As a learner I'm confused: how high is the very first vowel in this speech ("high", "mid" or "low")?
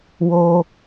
mid